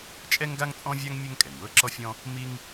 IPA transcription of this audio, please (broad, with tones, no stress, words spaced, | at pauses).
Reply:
t͡ʃʼɛ˥ŋɡa˥ŋt͡sʼɔ̃˥vʲa˥ŋ mʲɛ˥ŋkʼɛ˩ŋwɤ˥ ǁɔ˥fʲɔ̃˥ | mi˥ŋ